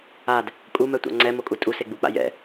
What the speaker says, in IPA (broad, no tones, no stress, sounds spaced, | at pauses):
a d | kʼ u m ɛ tʷ a̰ ŋ͡ǀ ɛ m o kʼ u tʼ u s e ɡ͡b u k͡p a̰ j ɛ̰